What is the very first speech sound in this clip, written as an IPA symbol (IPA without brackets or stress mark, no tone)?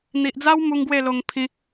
n̪